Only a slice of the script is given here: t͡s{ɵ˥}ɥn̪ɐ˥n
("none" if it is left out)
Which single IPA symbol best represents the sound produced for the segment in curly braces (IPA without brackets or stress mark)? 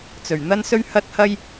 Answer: ɵ˨˩